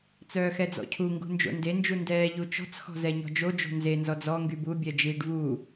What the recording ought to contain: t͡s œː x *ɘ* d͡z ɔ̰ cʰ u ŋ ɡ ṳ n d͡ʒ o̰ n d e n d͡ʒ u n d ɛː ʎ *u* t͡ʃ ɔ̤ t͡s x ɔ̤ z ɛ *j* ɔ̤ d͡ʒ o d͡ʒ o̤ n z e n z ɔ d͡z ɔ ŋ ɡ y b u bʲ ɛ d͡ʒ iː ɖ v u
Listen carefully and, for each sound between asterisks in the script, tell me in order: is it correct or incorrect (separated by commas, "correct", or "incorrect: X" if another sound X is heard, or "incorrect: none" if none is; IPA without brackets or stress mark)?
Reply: incorrect: ɛ, correct, incorrect: ɲ